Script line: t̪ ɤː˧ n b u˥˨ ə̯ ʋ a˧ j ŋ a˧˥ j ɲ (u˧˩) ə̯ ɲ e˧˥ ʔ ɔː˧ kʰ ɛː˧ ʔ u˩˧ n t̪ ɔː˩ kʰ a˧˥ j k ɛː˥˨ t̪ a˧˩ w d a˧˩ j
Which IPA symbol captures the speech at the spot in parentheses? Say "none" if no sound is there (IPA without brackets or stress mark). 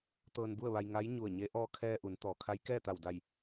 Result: u˧˩